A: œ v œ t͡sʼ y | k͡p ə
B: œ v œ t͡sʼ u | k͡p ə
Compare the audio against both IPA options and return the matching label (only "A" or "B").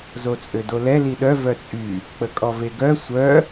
A